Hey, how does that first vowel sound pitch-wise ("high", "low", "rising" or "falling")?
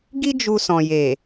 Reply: high